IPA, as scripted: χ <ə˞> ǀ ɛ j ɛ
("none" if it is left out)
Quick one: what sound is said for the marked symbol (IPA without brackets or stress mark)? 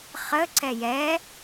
ə